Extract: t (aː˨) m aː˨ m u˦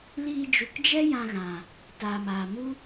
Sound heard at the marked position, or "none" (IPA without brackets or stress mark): aː˨